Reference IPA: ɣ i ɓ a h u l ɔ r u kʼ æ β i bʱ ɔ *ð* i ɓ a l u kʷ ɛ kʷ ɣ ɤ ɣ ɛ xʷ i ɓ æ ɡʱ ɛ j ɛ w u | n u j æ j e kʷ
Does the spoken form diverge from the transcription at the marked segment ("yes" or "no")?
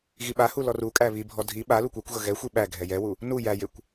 yes